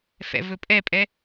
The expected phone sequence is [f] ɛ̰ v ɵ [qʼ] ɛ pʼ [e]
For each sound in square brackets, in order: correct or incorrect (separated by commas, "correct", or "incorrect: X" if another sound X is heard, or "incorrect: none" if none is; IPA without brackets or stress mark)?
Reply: correct, incorrect: pʼ, incorrect: ɛ